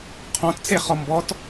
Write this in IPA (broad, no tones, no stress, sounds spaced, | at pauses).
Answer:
qʰ ɔ̃ t t͡s e χ ɔ m b ɔ t